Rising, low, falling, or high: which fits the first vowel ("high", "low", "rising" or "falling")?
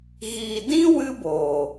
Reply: low